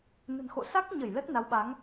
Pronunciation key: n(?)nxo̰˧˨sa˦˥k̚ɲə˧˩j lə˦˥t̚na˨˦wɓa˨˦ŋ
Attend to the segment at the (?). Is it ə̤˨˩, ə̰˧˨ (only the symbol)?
ə̤˨˩